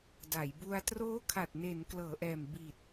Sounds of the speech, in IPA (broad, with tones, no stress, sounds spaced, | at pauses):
d a˩˦ j b u˧ a̯ t r oː˦˥ kʰ a˨˩ t̚ n e˩˦ n k l ɤː˩˦ ʔ ɛː˨˩ m b i˨˩ t̚